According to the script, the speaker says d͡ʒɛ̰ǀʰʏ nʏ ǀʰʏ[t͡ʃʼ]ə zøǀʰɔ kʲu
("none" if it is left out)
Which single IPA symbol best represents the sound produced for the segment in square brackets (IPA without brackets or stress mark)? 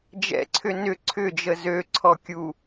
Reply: d͡ʒ